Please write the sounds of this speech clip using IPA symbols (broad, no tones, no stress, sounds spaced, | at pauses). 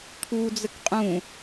t̪ʰ u d͡z ə k qʼ ũ